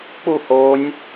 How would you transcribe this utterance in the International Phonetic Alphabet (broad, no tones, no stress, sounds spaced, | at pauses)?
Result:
k͡p u h o nʲ